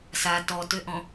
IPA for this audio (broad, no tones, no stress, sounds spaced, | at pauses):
s a t ɔ t ø ʔ ɔ̃